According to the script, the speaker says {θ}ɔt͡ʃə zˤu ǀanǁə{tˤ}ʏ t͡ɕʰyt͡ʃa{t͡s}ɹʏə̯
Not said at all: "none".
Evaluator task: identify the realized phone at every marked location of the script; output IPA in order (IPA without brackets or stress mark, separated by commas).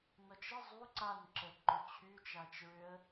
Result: n, ǃ, t͡ʃ